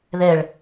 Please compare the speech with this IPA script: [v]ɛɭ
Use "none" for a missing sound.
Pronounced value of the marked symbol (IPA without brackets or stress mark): ð